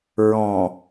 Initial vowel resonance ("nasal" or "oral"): nasal